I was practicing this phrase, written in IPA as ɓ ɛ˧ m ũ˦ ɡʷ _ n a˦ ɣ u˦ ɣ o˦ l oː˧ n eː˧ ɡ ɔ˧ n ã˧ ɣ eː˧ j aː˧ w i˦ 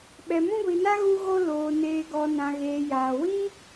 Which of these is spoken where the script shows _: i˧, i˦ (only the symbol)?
i˧